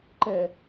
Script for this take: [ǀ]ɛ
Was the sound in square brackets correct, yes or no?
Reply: no